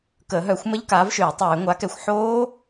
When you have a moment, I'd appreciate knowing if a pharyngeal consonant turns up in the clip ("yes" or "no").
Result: yes